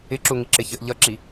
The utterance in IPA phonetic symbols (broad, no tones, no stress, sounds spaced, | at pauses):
ɪ ǁ u ŋ i ǁ ɪ ç ə ʔ ʎ ʌ ǁ i